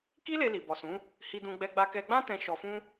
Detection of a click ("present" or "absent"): absent